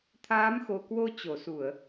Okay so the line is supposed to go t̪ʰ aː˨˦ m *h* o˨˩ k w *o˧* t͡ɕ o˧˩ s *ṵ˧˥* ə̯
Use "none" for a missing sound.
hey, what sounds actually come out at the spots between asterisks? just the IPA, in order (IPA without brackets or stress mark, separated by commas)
x, o˧, u˧˩˨